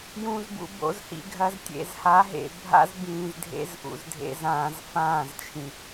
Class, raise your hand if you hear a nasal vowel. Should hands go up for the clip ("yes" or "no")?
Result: yes